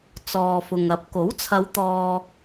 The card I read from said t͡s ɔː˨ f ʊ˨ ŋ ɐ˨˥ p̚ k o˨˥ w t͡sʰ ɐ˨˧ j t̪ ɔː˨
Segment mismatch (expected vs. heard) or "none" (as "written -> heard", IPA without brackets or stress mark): j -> w